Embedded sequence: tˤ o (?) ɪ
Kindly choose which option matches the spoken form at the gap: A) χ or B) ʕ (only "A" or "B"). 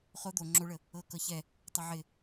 B